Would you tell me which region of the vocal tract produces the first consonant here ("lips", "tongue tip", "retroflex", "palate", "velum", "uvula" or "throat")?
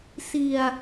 tongue tip